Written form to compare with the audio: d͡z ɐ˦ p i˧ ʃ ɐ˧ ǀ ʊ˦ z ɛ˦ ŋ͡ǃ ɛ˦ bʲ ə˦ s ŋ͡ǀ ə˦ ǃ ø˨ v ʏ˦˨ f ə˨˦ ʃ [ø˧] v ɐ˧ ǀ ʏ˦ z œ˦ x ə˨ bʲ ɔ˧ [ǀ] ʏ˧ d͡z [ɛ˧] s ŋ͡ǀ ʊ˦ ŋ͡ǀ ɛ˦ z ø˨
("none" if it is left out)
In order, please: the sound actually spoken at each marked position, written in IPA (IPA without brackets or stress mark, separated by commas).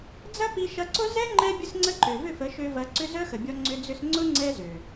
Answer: ø˧, ŋ͡ǀ, ʏ˧